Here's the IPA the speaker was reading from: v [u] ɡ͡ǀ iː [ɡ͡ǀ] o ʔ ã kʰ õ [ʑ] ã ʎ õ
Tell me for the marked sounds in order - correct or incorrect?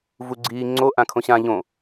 correct, incorrect: ŋ͡ǀ, incorrect: ɕ

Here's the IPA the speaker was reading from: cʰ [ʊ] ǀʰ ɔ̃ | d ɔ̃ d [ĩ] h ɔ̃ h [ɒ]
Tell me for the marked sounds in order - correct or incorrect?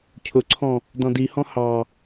correct, incorrect: i, incorrect: ɑ

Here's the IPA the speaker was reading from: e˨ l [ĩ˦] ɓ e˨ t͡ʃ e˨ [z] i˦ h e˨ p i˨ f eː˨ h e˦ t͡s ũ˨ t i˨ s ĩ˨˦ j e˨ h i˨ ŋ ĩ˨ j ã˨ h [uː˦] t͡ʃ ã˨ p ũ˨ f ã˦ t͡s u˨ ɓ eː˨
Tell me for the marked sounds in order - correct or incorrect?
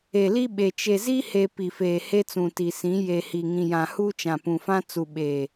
incorrect: i˦, correct, correct

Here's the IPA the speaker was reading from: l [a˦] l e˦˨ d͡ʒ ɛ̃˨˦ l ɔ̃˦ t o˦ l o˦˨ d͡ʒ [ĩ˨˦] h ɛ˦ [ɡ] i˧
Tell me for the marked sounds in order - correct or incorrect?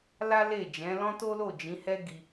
correct, correct, correct

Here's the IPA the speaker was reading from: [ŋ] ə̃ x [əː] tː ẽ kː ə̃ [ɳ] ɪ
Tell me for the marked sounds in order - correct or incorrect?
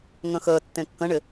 correct, correct, correct

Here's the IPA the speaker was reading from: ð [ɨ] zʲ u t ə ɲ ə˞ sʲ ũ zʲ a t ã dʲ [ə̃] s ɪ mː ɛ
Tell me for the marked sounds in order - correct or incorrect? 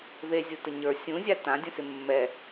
incorrect: e, correct

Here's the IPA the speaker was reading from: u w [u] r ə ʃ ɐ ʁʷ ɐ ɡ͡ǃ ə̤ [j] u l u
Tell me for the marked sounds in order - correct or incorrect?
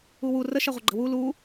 correct, incorrect: w

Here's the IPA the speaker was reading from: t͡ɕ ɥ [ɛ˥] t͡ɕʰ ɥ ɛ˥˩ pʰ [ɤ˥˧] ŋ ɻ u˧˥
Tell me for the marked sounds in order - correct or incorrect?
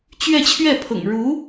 incorrect: ɛ˥˧, incorrect: ɤ̰˨˩

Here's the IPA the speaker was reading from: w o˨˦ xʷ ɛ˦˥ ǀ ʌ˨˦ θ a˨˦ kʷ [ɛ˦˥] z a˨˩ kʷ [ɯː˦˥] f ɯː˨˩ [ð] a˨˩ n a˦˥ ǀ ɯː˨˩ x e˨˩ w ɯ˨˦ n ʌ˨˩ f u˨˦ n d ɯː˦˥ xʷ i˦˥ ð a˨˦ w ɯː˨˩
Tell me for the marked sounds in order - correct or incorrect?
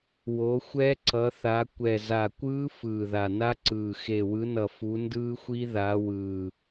incorrect: ɛ˨˩, correct, correct

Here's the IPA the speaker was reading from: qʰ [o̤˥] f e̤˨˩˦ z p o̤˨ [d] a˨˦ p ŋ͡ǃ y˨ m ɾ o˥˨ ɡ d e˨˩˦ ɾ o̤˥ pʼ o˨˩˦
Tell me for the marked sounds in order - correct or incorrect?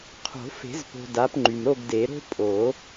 incorrect: o̤˨˩˦, correct

